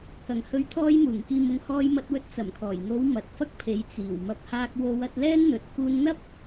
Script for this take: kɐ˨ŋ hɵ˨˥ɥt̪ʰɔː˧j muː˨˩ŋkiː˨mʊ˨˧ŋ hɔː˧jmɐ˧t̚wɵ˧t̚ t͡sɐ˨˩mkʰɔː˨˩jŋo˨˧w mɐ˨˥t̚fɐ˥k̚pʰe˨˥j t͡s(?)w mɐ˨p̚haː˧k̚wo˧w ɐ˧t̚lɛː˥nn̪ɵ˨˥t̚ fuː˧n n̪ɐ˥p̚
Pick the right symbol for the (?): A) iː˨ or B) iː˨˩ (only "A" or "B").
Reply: B